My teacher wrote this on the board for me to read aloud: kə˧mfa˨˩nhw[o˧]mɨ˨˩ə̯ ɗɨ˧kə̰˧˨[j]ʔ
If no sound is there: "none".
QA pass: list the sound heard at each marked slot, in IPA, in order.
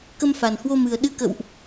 o˧, w

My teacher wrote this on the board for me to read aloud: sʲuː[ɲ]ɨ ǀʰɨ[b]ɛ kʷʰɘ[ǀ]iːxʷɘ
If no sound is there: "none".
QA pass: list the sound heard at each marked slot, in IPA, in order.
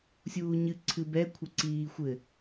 ɲ, b, ǀ

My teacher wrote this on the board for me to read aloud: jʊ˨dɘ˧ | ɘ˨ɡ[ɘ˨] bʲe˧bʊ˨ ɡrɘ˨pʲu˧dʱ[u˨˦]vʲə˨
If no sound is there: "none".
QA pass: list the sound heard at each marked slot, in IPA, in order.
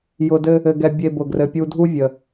ɛ˨, u˦

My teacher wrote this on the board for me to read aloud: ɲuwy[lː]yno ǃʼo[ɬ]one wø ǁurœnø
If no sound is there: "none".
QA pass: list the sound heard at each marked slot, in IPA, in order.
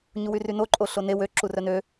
r, ɬ

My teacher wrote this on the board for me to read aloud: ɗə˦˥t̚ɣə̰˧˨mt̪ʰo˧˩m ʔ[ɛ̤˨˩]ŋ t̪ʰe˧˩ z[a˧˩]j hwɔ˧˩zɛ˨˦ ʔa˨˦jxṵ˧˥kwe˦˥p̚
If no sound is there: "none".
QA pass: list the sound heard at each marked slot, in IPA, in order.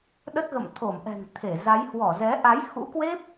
ɛ̤˨˩, a˨˦

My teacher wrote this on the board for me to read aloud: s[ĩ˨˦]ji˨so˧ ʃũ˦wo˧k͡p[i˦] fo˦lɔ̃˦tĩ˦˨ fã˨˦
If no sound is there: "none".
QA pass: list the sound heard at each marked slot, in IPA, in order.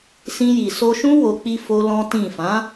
ĩ˧, i˧

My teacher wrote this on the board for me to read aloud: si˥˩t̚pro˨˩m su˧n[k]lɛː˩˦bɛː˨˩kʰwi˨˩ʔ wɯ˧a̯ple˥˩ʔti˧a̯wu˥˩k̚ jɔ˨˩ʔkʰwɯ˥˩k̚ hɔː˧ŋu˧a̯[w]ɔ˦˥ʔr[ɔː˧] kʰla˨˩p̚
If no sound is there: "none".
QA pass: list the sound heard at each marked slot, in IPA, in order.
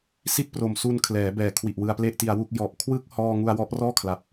kʰ, w, ɔː˥˩

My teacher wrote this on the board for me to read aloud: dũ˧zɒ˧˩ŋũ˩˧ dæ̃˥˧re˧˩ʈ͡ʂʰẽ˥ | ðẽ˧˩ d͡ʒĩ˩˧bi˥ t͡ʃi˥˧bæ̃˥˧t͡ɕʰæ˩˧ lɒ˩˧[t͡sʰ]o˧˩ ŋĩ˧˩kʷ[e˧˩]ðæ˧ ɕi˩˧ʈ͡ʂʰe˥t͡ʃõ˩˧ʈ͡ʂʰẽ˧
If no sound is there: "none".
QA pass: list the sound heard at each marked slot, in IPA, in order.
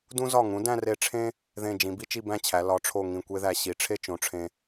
ʈ͡ʂʰ, e˥

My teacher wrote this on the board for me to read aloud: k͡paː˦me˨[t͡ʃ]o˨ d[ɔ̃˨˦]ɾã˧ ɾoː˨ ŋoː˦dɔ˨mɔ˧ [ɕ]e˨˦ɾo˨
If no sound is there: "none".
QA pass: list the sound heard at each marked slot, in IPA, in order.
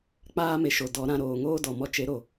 ʃ, ɔ˨˦, t͡ʃ

